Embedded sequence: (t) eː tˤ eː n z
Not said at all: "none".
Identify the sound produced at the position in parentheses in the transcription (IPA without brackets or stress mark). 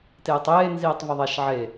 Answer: t